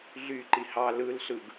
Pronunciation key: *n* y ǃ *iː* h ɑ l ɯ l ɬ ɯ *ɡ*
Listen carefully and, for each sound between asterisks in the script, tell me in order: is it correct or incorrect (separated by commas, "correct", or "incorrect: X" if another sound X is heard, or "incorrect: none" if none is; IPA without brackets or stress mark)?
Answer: incorrect: ɮ, incorrect: i, correct